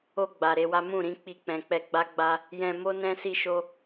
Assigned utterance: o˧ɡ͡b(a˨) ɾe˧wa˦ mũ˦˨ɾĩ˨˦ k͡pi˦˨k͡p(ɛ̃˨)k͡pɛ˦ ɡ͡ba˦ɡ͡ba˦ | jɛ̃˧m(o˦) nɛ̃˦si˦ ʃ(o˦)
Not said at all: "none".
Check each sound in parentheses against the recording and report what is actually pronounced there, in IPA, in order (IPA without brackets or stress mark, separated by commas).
a˨, ɛ̃˧, o˦, o˦